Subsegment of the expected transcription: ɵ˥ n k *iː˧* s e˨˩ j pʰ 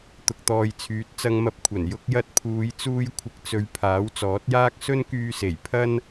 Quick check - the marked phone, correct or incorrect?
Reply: incorrect